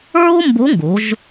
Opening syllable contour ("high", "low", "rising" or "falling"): high